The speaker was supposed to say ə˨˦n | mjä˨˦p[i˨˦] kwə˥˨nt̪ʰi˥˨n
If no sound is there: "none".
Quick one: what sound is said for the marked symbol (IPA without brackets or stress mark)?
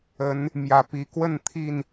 i˨˦